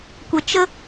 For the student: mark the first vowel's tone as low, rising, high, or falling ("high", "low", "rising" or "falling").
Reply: low